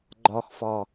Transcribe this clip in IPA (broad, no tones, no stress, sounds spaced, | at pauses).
ɡ͡ǃ ɒ x f ɒ